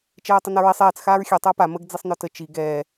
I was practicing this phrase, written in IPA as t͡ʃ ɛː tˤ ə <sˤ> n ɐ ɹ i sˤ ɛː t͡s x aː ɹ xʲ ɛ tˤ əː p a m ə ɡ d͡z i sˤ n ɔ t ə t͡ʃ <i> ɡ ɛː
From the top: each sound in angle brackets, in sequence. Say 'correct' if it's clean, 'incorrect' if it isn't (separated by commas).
incorrect, correct